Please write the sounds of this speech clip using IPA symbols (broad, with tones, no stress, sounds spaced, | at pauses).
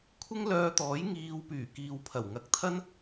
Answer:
kʷʰ ɪ˥ ŋ l œː˧ t̪ ɔː˨˥ j ŋ iː˧ w p yː˨˩ k iː˨ w pʰ ɐ˨˩ w ŋ ɐ˨˥ k̚ t̪ʰ ɐ˥ n